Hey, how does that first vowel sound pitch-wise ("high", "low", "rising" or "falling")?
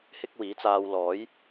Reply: high